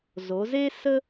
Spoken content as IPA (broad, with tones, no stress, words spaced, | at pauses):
zo˩˧ ze˥sə˥